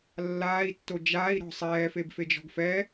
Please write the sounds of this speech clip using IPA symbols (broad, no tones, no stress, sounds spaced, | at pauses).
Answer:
lː aː i̯ tː o d͡ʒ aː i̯ ɾ ɔ̤ sˤ ɛː f e b f e d͡ʒ ɔ̤ ɡ f ɛ